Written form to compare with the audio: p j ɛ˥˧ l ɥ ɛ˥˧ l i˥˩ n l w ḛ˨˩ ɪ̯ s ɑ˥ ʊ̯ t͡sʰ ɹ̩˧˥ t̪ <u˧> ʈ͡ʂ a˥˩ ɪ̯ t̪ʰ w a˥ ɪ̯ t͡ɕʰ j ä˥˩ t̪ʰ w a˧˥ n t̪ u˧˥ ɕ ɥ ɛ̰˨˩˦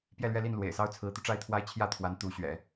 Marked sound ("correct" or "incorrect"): correct